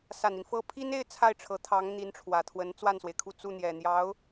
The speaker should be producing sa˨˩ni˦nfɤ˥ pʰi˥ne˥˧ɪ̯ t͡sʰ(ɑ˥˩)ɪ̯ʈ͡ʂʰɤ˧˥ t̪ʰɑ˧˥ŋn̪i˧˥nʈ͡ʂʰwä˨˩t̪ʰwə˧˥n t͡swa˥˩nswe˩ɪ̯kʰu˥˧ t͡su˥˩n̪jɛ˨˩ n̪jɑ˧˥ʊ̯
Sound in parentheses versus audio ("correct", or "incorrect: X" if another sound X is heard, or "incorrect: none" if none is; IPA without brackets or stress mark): incorrect: a˥˩